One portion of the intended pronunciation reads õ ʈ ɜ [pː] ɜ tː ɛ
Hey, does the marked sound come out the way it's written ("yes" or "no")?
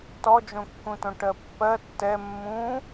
yes